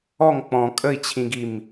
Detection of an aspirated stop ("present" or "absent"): present